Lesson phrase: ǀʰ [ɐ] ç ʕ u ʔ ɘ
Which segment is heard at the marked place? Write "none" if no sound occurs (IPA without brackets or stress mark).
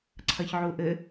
ɐ